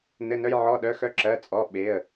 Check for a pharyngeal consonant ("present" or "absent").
present